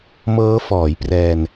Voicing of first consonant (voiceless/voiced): voiced